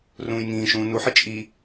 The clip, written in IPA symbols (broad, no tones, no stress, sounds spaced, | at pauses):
r ũː j ŋ ĩː ʃ ũː n u ħ ɪ t͡ʃʼ i